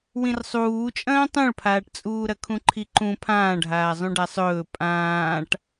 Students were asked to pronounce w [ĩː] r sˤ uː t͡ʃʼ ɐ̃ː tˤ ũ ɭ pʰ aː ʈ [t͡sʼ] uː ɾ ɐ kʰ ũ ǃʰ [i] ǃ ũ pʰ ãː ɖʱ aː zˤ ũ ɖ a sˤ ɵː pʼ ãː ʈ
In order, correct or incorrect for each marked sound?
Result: incorrect, correct, correct

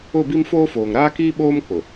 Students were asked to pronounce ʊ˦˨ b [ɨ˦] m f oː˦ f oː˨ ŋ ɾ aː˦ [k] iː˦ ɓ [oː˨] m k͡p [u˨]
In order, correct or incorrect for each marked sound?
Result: incorrect, correct, incorrect, incorrect

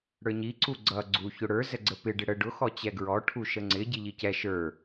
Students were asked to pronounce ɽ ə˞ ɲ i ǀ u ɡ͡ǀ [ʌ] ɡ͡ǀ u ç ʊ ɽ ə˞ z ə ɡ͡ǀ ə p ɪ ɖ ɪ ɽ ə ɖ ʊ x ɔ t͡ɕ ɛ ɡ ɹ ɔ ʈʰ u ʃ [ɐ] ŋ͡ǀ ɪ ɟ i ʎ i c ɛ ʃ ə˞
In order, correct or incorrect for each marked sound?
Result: correct, incorrect

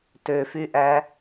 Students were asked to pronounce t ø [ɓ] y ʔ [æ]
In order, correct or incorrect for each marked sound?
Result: incorrect, correct

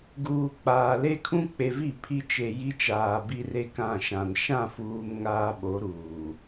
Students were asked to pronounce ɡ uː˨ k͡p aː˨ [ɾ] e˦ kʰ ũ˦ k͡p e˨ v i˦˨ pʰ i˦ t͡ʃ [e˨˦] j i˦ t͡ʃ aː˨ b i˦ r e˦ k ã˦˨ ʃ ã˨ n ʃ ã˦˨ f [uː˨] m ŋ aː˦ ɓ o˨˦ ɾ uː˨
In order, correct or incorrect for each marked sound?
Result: incorrect, incorrect, correct

